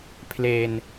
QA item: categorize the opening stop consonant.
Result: aspirated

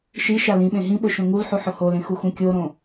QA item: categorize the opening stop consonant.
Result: implosive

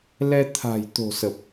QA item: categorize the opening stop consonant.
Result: aspirated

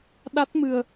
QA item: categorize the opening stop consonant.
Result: implosive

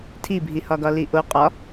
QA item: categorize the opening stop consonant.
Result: aspirated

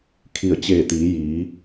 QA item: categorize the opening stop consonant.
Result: aspirated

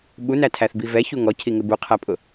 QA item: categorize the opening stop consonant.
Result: implosive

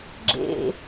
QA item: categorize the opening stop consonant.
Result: click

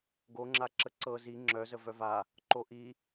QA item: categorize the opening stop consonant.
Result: plain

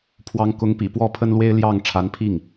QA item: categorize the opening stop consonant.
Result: aspirated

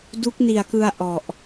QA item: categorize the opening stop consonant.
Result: plain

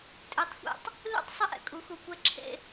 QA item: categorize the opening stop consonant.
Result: ejective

